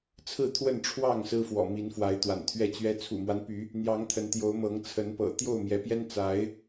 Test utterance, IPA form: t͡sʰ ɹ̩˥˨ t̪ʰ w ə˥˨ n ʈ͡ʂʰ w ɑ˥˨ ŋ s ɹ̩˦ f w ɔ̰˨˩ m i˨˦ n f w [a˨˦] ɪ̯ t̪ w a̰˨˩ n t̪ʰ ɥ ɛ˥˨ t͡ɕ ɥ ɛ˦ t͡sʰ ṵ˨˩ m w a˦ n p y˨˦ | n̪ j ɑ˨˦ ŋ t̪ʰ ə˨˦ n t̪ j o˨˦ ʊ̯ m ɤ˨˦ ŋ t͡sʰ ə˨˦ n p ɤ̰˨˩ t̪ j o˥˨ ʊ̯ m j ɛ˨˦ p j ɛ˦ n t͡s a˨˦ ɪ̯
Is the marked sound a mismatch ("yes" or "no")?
no